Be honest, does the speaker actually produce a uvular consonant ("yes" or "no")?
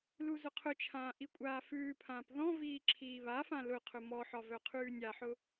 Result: yes